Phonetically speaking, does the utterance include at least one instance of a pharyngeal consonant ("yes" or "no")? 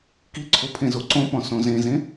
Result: no